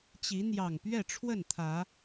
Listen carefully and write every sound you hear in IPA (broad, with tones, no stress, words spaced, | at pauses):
t͡ɕi˨˦n̪jɑ˨˩ŋ pɥɛ˥˨ʈ͡ʂʰwə˥˨nt̪ʰä˨˦